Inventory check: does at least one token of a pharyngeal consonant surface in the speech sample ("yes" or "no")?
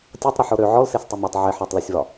yes